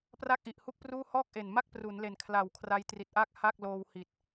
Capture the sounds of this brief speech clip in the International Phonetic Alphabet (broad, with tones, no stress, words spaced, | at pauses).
pra˥˩k̚ʔi˨˩ʔhu˥˩k̚pruː˥˩ hɔː˥˩k̚ʔe˨˩nma˥˩k̚ pru˩˦nle˨˩nkʰla˨˩w kʰra˦˥jtri˨˩t̚ʔaː˥˩k̚ ha˥˩k̚ loː˧whi˨˩t̚